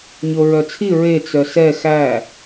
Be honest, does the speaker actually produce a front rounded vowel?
yes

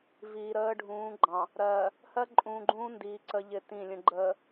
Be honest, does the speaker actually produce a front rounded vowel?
no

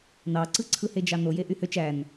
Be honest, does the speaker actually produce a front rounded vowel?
yes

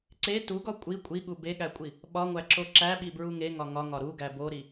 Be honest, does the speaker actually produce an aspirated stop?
no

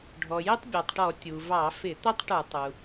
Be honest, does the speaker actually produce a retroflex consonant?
yes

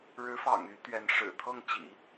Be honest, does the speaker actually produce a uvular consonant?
no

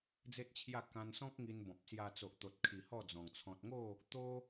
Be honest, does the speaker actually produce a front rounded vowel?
no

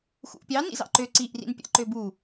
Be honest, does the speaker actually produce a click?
yes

